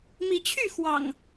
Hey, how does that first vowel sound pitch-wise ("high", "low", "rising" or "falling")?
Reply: rising